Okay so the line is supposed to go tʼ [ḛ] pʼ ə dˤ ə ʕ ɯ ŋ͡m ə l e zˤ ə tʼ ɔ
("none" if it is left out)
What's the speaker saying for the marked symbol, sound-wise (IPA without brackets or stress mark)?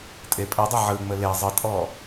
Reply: e